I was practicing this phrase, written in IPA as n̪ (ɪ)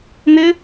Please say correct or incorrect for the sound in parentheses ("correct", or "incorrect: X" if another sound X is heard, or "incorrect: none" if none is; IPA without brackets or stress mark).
correct